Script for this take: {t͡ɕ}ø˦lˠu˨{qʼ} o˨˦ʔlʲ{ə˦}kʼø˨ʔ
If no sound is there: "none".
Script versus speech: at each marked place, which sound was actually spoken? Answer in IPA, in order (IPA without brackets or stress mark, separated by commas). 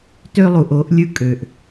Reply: t, ʔ, ɯ˦